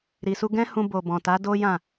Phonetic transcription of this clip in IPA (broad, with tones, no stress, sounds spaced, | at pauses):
ɾ i˨ s u˧ ɡ ɛ̃˦ h ũ˧ b o˨ b ɔ̃˨ t a˨˦ d o˦ j ã˦˨